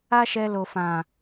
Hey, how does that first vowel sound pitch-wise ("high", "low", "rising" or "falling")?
high